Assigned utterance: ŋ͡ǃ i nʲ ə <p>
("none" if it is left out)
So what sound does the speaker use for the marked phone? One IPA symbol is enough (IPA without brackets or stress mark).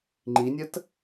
t